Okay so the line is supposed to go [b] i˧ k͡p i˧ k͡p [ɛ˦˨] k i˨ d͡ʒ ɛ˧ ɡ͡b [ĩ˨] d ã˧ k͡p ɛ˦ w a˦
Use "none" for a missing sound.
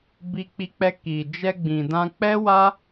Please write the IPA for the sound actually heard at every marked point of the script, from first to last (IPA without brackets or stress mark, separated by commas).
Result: b, ɛ˧, ĩ˨